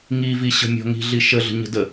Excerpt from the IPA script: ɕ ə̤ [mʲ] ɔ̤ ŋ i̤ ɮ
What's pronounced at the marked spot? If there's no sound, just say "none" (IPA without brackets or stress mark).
mʲ